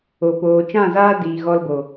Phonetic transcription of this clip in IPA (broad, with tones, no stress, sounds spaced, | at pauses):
o˨ p oː˨ t͡ʃ ã˦˨ z aː˦ d iː˨ ɣ ɔ˧ l b o˨